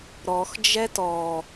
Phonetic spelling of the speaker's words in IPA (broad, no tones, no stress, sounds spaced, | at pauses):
ɾ ɔ x d͡ʒ ɛ t ɔ